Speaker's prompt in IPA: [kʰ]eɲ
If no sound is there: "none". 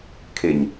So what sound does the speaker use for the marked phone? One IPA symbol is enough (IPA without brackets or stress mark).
kʰ